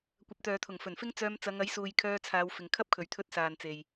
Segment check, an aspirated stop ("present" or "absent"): present